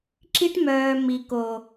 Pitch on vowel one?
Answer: high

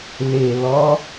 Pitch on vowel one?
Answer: low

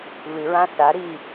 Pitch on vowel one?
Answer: low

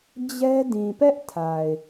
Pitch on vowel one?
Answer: high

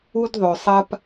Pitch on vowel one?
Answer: high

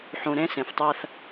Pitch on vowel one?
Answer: low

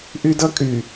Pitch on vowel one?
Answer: high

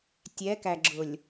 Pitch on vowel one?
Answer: rising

